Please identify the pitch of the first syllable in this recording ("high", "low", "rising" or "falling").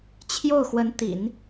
falling